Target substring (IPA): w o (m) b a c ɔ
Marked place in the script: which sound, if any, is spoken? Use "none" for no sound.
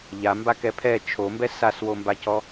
m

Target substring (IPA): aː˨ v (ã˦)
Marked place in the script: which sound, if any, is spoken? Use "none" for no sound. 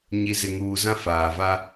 a˦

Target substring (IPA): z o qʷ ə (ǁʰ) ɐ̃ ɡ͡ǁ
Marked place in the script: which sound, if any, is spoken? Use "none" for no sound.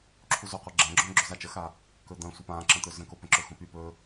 ɡ͡ǁ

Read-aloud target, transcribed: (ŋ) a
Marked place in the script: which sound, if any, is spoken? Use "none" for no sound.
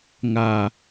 ŋ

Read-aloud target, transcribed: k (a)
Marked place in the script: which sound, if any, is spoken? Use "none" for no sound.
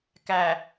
æ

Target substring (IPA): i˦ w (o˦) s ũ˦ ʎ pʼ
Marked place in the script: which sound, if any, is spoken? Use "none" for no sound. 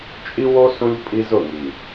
o˦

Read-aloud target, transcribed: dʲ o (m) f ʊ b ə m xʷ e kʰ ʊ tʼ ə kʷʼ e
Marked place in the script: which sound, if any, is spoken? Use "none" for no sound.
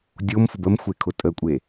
m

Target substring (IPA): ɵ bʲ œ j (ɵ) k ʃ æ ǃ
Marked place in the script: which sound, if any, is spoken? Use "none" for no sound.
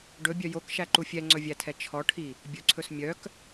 o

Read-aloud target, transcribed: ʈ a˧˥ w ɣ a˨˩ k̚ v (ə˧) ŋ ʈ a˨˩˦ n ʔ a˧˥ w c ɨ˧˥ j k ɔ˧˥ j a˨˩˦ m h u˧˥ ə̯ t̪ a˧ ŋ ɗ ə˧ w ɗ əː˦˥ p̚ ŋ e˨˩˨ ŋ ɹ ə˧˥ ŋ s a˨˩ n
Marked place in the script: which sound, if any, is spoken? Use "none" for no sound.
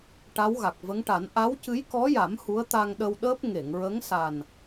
ə˧˥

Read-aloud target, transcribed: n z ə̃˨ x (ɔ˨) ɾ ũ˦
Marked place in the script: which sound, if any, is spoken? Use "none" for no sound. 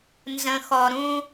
ɔ˨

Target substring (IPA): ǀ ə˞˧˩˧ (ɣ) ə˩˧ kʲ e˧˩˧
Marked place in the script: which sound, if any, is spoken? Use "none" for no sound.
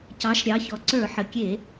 ħ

